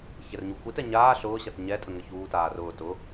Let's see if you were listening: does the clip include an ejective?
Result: yes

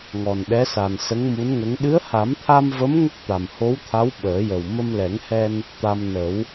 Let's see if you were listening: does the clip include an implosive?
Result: yes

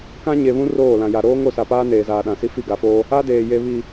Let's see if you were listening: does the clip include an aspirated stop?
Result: no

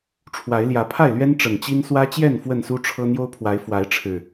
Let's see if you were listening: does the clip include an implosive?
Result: no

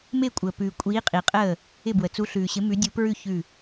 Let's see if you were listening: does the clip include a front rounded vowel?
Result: no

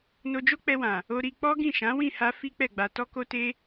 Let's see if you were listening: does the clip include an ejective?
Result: no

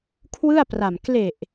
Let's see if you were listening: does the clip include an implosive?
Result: no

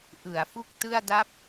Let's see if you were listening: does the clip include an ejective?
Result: no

